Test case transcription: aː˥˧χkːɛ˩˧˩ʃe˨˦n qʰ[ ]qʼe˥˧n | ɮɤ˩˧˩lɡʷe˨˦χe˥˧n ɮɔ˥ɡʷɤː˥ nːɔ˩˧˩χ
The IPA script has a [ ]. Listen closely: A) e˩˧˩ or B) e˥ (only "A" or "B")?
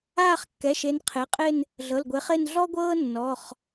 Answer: A